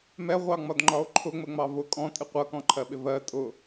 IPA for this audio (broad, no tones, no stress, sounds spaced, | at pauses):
m ɛ ʁʷ ɑ ŋ͡m ɒ d ŋ͡ǃ ɒ o̯ ǃʰ ʊ ŋ͡m ə ŋ͡m ɑ v ʊ kʼ ɔ̃ tʼ ɪ qʷ ʌ k ɔ̃ ǃʰ ɜ ɓ ɪ v ɜ tʼ ʊ